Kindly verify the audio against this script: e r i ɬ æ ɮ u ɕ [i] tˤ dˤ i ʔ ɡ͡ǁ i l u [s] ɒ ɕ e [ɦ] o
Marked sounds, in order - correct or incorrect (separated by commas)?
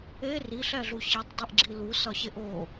correct, correct, incorrect